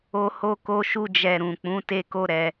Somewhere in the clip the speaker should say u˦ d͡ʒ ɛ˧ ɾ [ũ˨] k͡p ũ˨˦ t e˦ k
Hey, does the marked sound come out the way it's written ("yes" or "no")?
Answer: yes